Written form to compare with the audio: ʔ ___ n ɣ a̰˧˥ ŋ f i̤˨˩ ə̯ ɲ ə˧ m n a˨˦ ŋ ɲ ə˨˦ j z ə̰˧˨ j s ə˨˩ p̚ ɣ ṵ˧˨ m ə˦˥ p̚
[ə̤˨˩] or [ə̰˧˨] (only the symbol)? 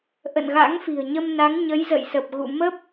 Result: ə̰˧˨